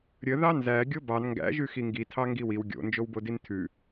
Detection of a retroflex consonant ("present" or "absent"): absent